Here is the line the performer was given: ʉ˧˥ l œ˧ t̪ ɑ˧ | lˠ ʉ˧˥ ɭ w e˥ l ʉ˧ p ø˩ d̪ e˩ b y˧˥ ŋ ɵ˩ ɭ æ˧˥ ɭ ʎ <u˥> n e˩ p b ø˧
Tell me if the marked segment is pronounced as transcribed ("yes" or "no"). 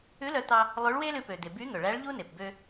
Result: yes